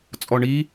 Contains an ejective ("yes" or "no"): yes